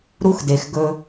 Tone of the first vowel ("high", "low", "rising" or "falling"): high